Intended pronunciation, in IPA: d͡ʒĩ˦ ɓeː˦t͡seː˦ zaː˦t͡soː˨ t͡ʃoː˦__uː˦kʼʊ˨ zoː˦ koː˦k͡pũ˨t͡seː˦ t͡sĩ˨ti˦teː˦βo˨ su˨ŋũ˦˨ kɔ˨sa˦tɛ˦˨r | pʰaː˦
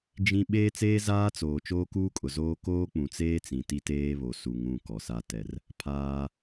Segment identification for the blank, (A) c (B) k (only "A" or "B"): B